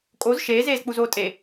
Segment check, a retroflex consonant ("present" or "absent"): absent